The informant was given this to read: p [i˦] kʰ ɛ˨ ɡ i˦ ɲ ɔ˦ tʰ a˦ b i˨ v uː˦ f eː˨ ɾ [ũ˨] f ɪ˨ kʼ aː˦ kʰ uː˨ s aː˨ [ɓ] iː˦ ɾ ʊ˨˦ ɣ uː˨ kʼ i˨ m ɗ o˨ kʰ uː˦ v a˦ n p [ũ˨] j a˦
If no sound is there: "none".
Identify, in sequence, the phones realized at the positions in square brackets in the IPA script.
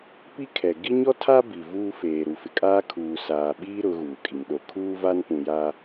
i˦, u˨, ɓ, ũ˨

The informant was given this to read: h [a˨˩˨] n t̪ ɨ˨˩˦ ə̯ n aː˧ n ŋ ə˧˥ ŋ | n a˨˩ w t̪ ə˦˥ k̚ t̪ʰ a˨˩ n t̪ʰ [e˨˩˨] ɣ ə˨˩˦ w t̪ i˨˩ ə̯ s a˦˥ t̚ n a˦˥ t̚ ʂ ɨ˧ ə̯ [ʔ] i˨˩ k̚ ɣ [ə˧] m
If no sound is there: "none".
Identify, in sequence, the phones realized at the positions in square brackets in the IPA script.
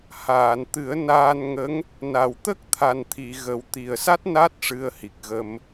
aː˨˩˨, i˨˩˨, h, ə˧

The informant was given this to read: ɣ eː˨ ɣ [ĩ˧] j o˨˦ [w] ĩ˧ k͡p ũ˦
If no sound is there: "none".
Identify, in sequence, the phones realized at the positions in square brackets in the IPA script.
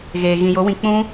ĩ˨, w

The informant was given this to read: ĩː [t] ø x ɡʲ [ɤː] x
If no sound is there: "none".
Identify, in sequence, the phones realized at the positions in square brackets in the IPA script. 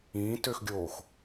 t, oː

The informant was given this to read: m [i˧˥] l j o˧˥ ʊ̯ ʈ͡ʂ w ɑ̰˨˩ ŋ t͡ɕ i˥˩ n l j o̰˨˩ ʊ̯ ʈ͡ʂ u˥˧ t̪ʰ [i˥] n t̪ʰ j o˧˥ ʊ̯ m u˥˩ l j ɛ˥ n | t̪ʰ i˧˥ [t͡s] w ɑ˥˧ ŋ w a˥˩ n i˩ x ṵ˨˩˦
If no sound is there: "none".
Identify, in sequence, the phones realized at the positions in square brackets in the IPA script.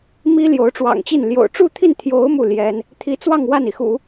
i˥, i˥˩, t͡s

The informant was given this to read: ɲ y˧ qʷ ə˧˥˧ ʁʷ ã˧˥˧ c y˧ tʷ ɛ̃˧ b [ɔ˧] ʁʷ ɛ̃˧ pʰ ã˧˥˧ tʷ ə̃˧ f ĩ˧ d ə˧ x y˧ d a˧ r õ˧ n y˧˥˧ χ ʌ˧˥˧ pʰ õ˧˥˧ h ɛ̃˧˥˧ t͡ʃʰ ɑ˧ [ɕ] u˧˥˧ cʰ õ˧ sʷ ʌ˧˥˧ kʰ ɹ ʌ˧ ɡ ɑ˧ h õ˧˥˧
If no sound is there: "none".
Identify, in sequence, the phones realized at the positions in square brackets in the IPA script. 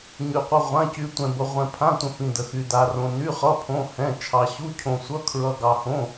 ə˧, ɕ

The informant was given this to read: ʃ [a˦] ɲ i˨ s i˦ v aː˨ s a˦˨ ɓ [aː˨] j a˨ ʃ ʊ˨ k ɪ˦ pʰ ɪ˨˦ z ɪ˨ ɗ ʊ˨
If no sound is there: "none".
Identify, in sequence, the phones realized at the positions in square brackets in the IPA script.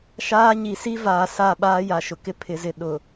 aː˦, aː˦

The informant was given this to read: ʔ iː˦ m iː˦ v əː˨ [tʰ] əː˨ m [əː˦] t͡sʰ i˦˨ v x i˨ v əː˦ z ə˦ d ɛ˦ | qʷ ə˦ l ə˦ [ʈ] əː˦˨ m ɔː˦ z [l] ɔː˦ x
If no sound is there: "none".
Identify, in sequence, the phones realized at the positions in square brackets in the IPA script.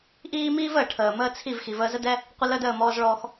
ʈʰ, əː˦, d, ɭ

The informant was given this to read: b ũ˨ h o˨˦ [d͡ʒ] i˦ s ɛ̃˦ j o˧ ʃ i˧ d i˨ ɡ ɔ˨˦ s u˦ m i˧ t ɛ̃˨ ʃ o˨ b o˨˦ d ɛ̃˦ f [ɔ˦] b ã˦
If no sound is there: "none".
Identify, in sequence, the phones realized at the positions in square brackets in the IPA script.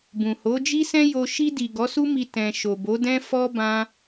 d͡ʒ, ɔ˦

